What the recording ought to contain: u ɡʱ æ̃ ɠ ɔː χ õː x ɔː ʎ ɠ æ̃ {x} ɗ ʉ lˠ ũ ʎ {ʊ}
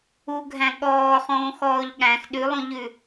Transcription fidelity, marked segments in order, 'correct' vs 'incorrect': correct, incorrect

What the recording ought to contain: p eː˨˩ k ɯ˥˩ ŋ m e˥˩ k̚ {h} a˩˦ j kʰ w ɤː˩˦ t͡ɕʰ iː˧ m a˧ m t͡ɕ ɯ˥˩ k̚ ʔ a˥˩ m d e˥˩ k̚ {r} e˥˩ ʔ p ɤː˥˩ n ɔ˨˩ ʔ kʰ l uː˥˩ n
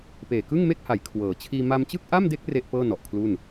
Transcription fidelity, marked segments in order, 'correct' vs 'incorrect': correct, correct

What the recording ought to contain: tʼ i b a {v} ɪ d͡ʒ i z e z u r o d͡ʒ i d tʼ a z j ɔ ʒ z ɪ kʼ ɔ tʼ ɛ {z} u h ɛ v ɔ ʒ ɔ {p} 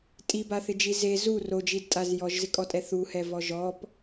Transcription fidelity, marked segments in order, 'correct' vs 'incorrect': incorrect, incorrect, correct

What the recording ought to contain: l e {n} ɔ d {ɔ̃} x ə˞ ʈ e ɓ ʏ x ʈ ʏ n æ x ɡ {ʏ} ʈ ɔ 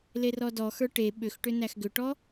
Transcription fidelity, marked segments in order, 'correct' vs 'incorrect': incorrect, incorrect, correct

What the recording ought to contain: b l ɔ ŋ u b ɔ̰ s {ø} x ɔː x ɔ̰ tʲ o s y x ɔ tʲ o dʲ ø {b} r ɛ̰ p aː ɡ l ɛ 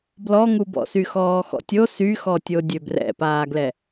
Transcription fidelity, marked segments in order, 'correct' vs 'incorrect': incorrect, correct

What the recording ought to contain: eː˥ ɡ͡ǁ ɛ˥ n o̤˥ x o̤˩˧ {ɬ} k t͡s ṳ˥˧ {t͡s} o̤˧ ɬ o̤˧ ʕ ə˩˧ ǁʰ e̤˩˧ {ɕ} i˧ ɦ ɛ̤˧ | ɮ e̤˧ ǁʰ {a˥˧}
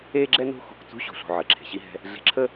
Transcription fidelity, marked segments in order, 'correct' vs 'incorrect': incorrect, incorrect, correct, incorrect

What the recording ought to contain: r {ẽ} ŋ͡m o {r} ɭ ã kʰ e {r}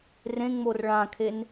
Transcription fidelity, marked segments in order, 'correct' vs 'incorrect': correct, correct, incorrect

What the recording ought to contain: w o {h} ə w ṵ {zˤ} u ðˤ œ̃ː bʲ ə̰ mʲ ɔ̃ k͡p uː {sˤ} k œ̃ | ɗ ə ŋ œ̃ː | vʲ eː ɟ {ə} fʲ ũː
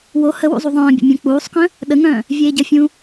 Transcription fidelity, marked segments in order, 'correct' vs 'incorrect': correct, correct, correct, correct

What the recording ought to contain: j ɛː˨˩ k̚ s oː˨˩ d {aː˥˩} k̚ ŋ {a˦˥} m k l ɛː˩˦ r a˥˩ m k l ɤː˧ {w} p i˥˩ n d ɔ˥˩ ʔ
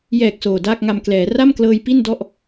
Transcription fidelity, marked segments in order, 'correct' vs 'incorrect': correct, incorrect, incorrect

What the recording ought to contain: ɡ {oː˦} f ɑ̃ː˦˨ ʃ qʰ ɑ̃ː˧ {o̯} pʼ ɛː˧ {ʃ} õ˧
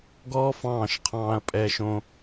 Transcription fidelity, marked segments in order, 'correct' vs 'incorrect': incorrect, incorrect, correct

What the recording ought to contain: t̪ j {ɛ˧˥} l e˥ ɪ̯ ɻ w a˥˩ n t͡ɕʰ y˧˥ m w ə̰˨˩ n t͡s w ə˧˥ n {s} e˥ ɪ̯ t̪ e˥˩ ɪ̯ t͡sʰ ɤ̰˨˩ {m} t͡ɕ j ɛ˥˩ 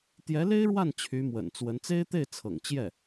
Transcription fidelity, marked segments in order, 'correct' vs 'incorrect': correct, incorrect, incorrect

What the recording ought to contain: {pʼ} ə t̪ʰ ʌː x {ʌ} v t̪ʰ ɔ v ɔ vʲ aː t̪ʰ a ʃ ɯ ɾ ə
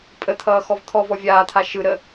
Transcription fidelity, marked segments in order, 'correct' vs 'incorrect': correct, incorrect

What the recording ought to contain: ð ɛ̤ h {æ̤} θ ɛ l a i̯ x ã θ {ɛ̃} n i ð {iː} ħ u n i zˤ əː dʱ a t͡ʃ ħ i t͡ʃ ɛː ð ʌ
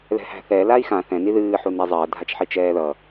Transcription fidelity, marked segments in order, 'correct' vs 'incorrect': correct, correct, incorrect

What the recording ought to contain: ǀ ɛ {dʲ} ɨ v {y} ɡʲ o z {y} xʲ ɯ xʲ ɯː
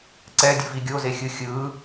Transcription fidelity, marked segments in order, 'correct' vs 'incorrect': correct, incorrect, incorrect

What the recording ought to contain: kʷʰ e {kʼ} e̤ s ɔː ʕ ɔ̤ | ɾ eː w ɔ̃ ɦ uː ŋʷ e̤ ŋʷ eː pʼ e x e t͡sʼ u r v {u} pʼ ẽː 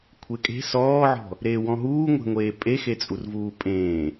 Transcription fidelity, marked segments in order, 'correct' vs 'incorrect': correct, incorrect

